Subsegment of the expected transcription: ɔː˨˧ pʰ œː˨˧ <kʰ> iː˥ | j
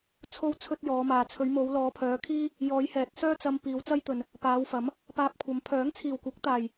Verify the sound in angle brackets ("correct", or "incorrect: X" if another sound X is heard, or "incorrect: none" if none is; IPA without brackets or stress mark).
correct